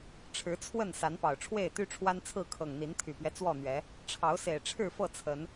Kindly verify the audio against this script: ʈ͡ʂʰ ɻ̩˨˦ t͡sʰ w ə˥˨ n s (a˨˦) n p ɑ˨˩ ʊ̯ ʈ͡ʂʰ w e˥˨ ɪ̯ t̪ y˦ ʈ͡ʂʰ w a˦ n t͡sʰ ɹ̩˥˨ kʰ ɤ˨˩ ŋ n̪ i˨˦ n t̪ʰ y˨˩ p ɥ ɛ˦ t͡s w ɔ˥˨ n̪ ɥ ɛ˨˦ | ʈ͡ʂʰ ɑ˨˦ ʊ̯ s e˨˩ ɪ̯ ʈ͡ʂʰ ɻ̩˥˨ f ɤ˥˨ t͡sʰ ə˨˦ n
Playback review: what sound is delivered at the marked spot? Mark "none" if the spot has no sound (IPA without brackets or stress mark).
a˨˦